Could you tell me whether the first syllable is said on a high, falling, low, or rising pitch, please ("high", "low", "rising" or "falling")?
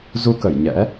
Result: rising